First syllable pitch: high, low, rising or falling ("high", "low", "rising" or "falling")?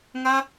high